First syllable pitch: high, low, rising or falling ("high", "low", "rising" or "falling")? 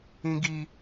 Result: high